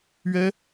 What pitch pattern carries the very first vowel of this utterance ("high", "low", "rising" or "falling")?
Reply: high